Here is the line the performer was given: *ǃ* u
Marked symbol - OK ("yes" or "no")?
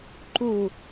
yes